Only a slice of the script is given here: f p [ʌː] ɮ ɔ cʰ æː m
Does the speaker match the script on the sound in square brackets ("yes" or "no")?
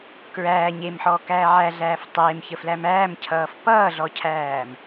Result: yes